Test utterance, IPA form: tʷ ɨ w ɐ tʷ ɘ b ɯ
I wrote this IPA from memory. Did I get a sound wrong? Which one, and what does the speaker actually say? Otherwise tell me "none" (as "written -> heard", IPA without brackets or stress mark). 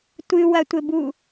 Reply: ɯ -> u